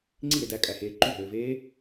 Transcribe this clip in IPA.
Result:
ŋ͡ǀ i ɾ e d æ kʼ æ h eː ǃ y ɦ øː v eː

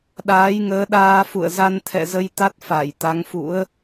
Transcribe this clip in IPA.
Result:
ɗ aː˨˦ j ŋ əː˨˦ ɗ aː˧ f ṵ˧˨ ə̯ z a˧ n t̪ʰ ɛ̰˧˨ z ə˧ j t̪ a˦˥ t̚ f a˧˩ j t̪ a˨˦ ŋ f ṵ˧˥ ə̯

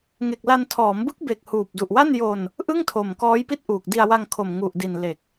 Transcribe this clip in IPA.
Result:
ŋ e˨˩ k̚ l a˧ n tʰ ɔː˩˦ m b ɯ˦˥ k̚ b e˨˩ k̚ h uː˨˩ p̚ d u˨˩ ʔ w a˥˩ n j o˧ n | ʔ ɯ˥˩ ŋ tʰ o˨˩ m k ɔː˦˥ j p i˥˩ t̚ ʔ uː˨˩ k̚ d i˧ a̯ w a˧ ŋ kʰ o˨˩ m ŋ u˨˩ ʔ d i˨˩ n l e˨˩ k̚

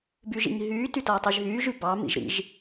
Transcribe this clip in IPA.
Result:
b y ʒ ḭ ɲ ɦ yː t y t ʌː tˤ y ʒ ɦ yː ʒ y b ɑ m ḭ ʒ ɾ ḭ ʒ

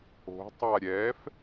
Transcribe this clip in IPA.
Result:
o̤ tˤ a ɾʲ ɛ f

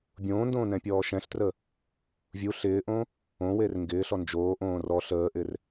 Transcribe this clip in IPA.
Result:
bʲ õː n d õː n ɛ̃ pʲ ɔː ʃ ɛ̃ ɬ t r ə | vʲ u ɬ ɪː ʔ õ | õ w e r ŋ ɡ ɪː ɬ ɔ n d͡ʒ oː ʔ õː r ɔ ɬ əː ʔ ɪ r

